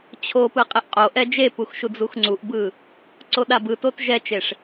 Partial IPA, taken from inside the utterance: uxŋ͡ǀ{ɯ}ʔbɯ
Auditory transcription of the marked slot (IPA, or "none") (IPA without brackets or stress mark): u